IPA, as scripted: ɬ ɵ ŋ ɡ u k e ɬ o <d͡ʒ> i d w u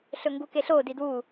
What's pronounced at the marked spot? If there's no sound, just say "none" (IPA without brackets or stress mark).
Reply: d